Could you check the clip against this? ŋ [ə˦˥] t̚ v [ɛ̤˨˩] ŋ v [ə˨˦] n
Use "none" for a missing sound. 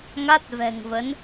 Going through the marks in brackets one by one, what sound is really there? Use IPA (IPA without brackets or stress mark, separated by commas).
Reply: a˦˥, ɛ̤˨˩, ə˨˦